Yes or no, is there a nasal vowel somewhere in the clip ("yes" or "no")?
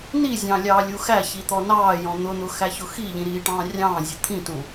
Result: yes